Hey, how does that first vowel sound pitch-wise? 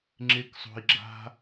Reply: high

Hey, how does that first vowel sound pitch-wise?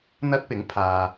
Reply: high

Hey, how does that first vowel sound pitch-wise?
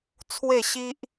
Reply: falling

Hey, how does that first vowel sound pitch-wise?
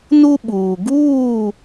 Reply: high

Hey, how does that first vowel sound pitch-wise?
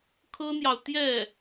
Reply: high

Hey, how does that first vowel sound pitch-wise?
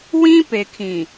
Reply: high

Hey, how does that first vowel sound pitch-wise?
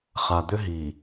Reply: low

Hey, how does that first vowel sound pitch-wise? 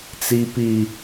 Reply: high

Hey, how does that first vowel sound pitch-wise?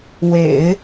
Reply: low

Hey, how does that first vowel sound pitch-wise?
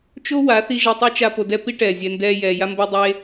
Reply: high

